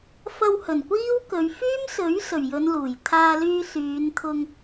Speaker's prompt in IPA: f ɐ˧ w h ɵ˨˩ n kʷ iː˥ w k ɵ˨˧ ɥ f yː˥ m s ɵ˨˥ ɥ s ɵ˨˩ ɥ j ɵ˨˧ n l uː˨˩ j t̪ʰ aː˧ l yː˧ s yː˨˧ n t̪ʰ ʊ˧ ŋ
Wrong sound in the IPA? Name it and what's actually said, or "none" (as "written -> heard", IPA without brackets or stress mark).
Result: none